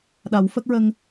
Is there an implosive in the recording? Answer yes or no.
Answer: yes